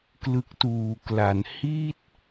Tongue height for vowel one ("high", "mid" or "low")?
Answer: high